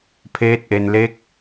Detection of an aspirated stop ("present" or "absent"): present